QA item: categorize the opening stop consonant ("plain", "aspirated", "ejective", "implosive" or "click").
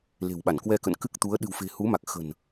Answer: implosive